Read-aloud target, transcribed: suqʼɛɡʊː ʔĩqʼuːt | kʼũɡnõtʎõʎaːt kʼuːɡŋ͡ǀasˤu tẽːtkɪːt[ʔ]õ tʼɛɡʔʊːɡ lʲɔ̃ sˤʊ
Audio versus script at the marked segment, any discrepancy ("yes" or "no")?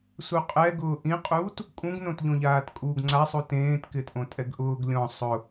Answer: no